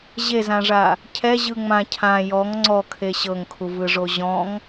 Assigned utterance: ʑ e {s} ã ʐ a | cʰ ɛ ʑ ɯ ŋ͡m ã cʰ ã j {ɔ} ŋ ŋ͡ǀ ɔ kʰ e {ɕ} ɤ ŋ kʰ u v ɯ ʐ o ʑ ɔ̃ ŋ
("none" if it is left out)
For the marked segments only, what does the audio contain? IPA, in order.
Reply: z, ɔ, ɕ

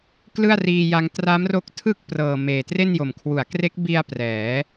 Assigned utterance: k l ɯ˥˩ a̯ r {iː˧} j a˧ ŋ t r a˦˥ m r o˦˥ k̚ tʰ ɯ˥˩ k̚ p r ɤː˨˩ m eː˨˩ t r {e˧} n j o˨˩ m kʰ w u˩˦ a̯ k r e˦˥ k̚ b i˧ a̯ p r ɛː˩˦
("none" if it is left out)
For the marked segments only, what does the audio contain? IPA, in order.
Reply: iː˧, e˥˩

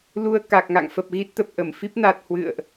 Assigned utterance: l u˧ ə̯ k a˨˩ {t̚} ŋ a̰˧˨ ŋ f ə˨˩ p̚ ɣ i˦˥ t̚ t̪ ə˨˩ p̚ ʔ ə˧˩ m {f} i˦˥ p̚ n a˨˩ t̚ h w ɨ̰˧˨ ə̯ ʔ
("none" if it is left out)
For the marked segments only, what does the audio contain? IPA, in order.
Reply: k̚, f

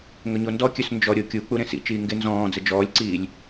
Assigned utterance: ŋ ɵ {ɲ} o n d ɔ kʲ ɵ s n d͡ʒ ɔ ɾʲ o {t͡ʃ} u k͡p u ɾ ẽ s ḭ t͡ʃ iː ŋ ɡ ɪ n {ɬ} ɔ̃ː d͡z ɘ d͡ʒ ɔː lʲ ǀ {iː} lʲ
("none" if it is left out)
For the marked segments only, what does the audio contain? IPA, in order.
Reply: ɲ, kʲ, z, iː

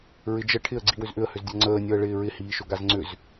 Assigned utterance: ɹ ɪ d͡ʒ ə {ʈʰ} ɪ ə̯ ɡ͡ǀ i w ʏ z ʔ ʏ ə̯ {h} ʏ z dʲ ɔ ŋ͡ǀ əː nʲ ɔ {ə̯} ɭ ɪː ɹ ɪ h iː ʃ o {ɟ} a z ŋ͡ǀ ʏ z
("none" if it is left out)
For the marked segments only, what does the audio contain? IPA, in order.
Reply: ʈʰ, h, ə̯, ɡ

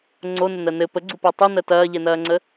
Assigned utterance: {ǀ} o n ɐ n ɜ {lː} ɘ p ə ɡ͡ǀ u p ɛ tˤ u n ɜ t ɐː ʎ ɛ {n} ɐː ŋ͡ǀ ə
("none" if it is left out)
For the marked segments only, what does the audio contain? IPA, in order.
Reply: ŋ͡ǀ, n, n

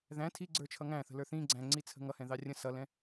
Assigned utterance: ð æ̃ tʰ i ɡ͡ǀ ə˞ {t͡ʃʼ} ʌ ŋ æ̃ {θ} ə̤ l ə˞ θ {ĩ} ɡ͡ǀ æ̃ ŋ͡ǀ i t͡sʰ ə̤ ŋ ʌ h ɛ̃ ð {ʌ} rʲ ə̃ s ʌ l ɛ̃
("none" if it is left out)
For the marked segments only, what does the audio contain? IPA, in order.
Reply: t͡ʃʰ, θ, ĩ, ɑ

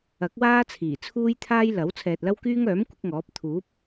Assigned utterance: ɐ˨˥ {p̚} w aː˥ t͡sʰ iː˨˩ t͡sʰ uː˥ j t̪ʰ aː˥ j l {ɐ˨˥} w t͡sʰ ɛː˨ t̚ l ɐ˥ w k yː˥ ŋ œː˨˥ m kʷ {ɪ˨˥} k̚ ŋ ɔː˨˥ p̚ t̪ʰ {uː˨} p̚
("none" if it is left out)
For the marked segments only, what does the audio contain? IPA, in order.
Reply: k̚, ɐ˨˥, ɪ˨˥, uː˨˥

